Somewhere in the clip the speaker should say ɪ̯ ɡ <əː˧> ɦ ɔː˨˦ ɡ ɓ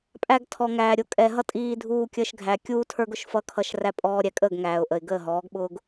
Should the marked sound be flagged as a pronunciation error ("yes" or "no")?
yes